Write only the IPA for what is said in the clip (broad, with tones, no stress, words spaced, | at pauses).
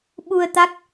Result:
ɓu˧ə̯t̪a˦˥k̚